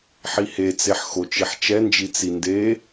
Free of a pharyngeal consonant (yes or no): no